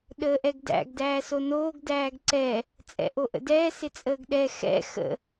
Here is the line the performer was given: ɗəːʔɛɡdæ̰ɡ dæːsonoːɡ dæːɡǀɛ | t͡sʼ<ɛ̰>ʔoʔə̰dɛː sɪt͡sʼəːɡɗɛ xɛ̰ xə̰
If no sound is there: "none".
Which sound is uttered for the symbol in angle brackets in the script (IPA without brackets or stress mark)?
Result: ɛ̰